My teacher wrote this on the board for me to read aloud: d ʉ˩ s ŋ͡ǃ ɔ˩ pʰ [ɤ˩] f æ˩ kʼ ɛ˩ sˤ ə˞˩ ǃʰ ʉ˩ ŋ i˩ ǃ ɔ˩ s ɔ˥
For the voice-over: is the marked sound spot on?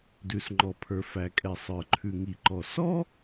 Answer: no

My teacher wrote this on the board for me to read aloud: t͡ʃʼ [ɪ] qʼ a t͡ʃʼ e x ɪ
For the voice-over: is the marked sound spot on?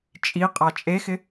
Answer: no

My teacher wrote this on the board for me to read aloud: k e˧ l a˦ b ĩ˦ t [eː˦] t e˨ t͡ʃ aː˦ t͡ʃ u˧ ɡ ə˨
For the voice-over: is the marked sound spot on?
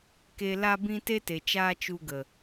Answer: no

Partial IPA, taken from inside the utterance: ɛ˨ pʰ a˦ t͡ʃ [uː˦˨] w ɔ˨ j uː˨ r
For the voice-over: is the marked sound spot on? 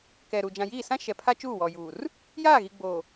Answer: yes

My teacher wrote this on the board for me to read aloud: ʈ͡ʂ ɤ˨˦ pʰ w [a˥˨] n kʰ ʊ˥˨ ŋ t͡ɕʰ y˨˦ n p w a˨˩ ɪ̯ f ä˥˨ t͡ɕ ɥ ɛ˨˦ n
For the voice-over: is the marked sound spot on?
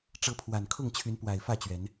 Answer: no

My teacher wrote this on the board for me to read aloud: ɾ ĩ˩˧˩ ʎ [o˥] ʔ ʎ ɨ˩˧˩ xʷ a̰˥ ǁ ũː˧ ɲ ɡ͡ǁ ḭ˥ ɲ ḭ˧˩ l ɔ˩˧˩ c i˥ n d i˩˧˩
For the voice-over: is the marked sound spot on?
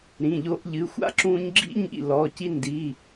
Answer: no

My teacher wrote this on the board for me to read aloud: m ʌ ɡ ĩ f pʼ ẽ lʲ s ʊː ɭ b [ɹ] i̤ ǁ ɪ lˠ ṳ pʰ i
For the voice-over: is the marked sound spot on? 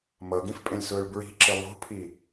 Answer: yes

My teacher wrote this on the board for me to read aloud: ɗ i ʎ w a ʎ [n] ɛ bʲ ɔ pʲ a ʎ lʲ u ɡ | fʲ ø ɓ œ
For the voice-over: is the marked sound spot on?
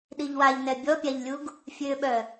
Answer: yes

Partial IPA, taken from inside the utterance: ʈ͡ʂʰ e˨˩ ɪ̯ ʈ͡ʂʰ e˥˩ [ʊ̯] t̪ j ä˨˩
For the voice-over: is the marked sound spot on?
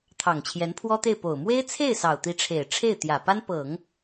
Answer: no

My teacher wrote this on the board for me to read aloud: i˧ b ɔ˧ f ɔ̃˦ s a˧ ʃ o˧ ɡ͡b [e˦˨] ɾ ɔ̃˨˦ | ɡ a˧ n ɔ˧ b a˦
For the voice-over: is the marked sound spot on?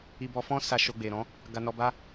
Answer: no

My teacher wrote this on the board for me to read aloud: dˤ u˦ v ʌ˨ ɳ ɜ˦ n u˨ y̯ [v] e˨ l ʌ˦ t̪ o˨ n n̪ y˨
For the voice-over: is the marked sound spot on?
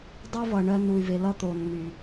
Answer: yes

